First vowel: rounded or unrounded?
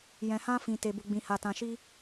unrounded